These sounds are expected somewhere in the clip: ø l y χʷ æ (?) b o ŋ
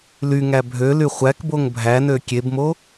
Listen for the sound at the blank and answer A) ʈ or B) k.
B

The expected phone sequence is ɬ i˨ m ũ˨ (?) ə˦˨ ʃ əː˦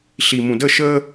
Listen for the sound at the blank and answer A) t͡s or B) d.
B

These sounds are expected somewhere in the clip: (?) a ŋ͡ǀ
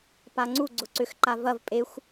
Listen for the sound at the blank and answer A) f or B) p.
B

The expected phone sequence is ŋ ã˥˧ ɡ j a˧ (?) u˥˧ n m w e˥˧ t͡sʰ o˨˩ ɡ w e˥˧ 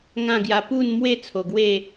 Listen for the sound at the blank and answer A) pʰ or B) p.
B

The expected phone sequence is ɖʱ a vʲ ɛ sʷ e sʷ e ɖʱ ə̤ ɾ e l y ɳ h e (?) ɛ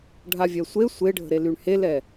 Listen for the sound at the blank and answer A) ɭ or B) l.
B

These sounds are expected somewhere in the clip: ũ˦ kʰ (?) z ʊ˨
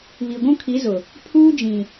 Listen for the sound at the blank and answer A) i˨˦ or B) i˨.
A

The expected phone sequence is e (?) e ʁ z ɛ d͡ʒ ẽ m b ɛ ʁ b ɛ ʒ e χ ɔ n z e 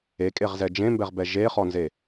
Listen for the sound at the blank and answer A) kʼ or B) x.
A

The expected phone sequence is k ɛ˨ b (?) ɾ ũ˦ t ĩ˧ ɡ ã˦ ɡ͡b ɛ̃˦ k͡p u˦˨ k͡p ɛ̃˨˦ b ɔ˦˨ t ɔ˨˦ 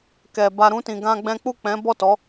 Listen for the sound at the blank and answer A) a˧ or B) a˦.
A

